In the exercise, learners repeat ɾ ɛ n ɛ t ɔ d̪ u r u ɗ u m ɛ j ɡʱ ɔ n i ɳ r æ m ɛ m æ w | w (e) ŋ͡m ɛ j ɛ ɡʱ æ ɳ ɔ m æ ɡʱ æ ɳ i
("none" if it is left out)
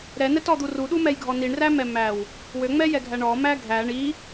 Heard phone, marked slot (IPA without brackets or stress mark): ø